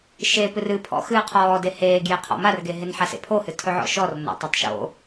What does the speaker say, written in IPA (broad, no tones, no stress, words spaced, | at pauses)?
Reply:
ʃe pɨrɨ pʰɔ̰xɨːqʰɔːde heːɡjeqʰɔ̰ marɡeɦen ħasḛpʰohɨ tʰɵʕɔ̰ʃɔr no̰tˤʌtˤʃo̰